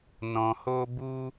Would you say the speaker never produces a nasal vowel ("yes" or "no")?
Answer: no